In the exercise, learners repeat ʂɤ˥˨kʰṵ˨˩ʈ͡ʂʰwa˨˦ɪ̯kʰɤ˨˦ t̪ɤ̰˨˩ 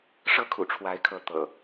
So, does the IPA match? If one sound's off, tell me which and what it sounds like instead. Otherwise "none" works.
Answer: none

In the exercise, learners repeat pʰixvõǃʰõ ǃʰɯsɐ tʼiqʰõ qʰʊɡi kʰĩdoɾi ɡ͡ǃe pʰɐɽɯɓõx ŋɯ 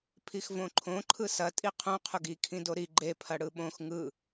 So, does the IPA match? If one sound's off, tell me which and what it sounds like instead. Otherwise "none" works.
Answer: none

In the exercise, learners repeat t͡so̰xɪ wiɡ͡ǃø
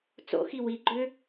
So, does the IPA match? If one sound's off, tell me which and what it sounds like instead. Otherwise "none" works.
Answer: ɪ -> i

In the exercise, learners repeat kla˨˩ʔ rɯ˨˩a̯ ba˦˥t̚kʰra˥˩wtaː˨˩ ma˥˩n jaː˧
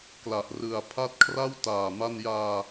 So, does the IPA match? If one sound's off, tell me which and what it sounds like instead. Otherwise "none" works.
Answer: b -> pʰ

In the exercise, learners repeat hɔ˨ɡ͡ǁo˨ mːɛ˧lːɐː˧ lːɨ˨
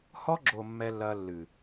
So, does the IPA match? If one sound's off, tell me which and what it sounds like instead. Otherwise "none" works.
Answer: ɔ˨ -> ɔ˧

